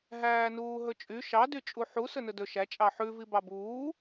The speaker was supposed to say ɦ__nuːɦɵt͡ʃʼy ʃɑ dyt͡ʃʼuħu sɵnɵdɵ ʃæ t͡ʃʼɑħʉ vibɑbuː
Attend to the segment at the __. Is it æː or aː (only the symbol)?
æː